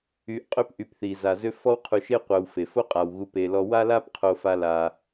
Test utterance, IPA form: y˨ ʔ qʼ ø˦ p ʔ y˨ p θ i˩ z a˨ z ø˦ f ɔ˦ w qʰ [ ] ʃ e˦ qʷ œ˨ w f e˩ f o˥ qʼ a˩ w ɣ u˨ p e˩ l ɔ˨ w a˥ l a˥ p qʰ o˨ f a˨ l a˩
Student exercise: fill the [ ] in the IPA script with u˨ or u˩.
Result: u˨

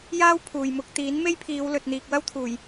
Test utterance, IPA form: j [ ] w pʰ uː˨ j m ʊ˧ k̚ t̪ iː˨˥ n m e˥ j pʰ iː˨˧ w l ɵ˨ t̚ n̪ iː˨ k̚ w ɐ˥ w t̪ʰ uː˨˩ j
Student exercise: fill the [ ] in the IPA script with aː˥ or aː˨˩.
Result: aː˥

